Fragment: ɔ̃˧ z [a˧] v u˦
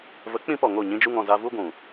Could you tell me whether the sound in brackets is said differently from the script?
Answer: no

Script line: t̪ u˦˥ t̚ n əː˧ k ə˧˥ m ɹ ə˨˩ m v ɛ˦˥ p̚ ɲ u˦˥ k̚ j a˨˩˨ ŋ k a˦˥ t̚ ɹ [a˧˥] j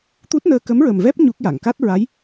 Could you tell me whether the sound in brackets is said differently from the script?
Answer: no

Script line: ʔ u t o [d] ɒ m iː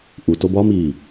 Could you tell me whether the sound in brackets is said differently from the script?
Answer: yes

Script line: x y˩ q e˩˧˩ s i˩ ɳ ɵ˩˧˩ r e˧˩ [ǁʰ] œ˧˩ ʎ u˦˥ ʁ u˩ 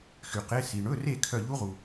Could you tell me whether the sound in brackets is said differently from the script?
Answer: yes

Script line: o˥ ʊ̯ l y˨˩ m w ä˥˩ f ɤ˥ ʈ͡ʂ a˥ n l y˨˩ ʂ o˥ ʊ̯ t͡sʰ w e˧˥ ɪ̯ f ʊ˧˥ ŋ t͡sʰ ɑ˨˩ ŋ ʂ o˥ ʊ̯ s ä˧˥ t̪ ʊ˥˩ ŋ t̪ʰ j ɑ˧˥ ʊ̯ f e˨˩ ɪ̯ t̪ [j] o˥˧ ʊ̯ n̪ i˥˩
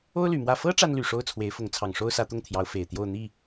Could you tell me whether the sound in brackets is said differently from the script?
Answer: no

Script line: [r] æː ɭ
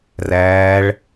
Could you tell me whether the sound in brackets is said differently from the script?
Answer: no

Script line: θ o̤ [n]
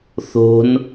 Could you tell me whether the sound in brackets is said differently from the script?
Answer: no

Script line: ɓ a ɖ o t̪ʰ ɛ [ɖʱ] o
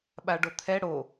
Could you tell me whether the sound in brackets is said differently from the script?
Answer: yes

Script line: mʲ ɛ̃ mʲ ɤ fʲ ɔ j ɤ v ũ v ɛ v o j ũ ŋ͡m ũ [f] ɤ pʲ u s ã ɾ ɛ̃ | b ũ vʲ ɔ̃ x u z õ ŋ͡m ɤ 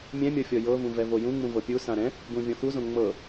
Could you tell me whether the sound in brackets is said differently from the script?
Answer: yes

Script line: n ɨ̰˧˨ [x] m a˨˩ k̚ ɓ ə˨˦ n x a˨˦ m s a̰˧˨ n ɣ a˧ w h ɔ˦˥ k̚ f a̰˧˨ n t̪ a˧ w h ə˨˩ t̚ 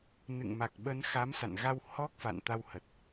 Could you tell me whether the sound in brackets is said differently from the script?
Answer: yes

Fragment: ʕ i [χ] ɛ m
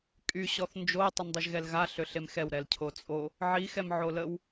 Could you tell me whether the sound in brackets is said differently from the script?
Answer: yes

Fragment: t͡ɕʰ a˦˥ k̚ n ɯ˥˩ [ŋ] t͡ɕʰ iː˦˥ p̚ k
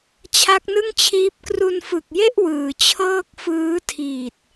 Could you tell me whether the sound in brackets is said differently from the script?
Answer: no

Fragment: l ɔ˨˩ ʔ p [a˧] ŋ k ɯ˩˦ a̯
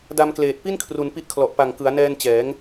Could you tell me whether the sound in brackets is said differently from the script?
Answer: yes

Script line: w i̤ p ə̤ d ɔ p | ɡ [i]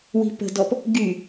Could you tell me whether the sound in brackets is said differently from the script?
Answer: yes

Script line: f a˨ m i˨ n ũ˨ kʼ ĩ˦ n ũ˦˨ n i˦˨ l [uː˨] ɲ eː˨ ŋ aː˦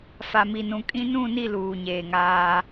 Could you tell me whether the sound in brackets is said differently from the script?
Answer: no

